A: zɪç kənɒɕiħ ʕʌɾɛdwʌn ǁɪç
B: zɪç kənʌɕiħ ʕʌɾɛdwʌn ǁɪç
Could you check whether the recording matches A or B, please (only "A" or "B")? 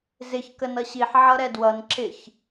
B